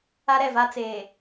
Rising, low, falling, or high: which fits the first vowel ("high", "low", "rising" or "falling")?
high